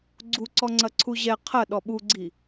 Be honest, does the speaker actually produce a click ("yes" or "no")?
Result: yes